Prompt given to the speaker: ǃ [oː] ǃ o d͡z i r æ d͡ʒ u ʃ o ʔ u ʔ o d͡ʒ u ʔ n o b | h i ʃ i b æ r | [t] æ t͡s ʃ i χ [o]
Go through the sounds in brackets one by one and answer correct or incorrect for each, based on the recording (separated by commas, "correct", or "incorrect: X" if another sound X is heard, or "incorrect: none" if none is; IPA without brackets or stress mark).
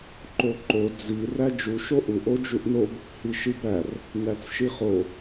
incorrect: o, incorrect: n, correct